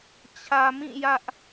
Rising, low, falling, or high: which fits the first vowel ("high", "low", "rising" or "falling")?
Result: low